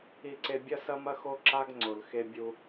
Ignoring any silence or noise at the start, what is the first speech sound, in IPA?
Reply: i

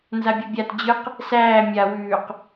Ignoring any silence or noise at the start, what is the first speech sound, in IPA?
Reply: n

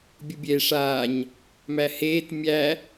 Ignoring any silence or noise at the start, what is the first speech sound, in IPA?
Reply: bʲ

